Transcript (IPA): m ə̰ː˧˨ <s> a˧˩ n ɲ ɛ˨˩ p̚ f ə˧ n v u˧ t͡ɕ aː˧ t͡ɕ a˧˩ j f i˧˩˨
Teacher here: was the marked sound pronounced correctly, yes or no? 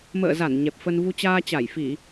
no